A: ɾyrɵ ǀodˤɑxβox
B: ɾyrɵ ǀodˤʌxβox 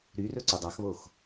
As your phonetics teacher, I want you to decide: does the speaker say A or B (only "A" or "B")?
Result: A